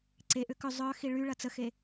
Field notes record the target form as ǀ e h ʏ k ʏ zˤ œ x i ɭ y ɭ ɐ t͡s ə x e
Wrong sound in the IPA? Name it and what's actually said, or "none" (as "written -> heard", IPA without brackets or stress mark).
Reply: h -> ʔ